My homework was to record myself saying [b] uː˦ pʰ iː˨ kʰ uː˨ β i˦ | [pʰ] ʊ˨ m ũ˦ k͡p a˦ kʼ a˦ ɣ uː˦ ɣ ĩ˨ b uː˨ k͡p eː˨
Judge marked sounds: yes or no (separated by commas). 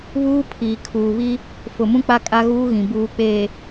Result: no, no